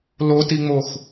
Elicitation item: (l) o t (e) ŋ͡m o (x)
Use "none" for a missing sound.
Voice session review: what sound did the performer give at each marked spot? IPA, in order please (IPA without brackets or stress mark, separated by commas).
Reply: l, i, x